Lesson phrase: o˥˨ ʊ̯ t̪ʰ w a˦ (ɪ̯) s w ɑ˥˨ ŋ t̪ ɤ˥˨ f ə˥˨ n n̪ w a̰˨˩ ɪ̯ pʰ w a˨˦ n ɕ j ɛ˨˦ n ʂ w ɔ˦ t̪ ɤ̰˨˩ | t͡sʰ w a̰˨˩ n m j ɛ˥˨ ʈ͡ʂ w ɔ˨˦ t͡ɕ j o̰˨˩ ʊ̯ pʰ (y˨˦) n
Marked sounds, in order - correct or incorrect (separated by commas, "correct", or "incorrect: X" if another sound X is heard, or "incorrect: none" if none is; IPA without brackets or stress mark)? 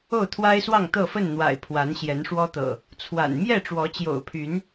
correct, correct